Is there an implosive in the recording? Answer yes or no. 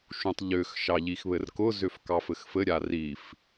no